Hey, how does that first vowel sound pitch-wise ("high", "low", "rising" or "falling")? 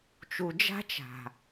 low